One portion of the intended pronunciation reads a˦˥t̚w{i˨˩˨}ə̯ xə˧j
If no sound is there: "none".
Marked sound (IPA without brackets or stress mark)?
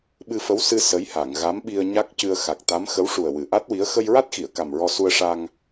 i˧˥